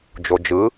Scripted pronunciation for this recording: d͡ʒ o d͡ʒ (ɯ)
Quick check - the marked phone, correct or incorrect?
correct